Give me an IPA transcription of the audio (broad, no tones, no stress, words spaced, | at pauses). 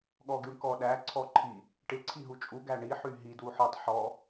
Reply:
ɠɔɡyɳkɔɗæ ǀʰɔǃʰi | ʈɪ ǀʰiɦut͡ʃʼu ɡæɳi ħyɦi dwuħɔtˤ ħɔ